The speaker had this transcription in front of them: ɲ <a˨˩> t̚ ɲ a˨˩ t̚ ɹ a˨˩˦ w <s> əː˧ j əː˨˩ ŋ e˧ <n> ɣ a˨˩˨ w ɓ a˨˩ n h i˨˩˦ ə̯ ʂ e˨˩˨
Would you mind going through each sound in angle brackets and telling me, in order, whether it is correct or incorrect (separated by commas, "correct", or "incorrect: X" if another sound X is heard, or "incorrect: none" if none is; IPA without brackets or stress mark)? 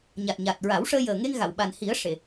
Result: correct, incorrect: ʂ, incorrect: ŋ